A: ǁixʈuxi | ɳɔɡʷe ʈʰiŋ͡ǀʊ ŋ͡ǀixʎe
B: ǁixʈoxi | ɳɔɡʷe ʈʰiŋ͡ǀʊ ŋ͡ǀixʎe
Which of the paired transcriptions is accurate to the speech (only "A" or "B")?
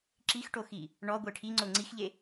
B